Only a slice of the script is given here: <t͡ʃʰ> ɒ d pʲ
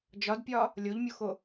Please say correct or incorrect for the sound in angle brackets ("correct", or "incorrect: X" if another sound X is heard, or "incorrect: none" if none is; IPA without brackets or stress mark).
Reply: incorrect: d͡ʒ